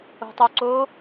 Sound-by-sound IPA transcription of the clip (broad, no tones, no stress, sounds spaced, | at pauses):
o̤ tˤ o ǀ o